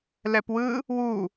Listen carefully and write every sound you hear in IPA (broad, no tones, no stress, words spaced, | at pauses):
lɛpwɯ | wu